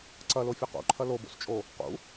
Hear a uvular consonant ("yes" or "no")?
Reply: yes